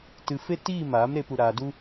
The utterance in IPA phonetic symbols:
t ɨ˧ f e˦ t iː˦˨ m aː˨˦ m ɾ e˦ p u˧ ɾ aː˧ d u˦

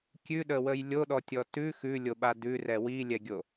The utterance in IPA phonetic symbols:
kʲ ʉ ɗ ə w ə j lʲ o ɗ ɔ tʲ ɔ t ʉ x ʉ lʲ o ɓ a d ʉ r ɛ w i lʲ ɛ ɡʲ o

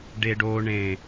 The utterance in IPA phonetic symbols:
ɖ e ɖ o ɳ ẽ

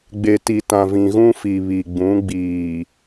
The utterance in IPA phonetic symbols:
ɡ͡b e˨ t i˨ t ã˨ v ĩ˨ ɣ ũ˦ f i˨ β i˨ ɡ͡b ũ˨˦ ɡ͡b iː˨

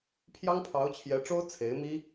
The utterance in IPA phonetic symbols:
pʰ j ɑ˥ ŋ pʰ ɑ˧˥ ʊ̯ t͡ɕʰ j ɛ˧˥ ʈ͡ʂ o˥ ʊ̯ t͡sʰ e˧˥ ɪ̯ m i˥

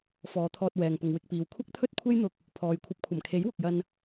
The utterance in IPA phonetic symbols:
f ɔː˨˧ t̪ʰ ɔː˧ t̚ w ɛː˨ ŋ p ʊ˨ ŋ w ɪ˧ k̚ p iː˨ w kʷʰ ɐ˥ k̚ t̪ʰ ɵ˥ t̚ kʷʰ e˥ j n̪ ʊ˧ k̚ | pʰ ɔː˨ j kʷʰ ɐ˧ p̚ kʷʰ ɐ˨˩ m kʰ e˨˥ j w ʊ˨ k̚ j ɐ˧ n

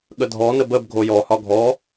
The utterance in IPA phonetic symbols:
ɠ ə dʱ ɔ n ə b ə b ɡʱ o j ɔ h ɒ ɡʱ ɔ

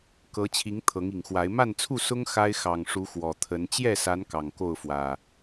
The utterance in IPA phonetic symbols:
k ɤ˨˦ t͡ɕʰ i˨˦ ŋ t̪ʰ ɤ˨˦ ŋ i˨˩ ŋ x w a˨˦ ɪ̯ m a˥˨ n t͡sʰ u˥˨ s ʊ˦ ŋ x a˦ ɪ̯ x ɑ˨˩ ŋ ʂ u˨˦ x w ɔ˨˩ t̪ʰ ə˨˦ n t͡ɕ j ɛ˥˨ s a˨˦ n k ɑ˨˩ ŋ k o˥˨ ʊ̯ f w ä˨˩

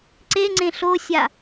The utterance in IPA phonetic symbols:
ǀ e ŋ͡ǀ ẽ ɬ o sʲ a

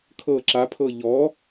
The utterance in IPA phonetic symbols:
kʰ ɤ ǁ a pʰ ɤ ʎ ɔ

